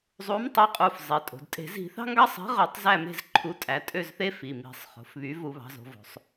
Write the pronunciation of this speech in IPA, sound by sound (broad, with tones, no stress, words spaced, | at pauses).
zˤu˨˥mtˤø˨˥qʼu˩˧˩f zˤi˩˧tʼo̤˩˧d tʼe̤˧˩˧ zi̤˧˩˧θɑ̤˦ŋɡɑ˦sˤe̤˨˥ ʁø˧˩˧tˤzæ˦˨me̤˦˨z ǃʰu˨˥ tʼæ˩˧tʼø˦˨zθe˦ fi˩˧˩mi̤˧˩˧sˤχo̤˩˧fβy˨˥ vu˧˩˧βɑ̤˩˧zo̤˩˧ vo̤˩˧sˤ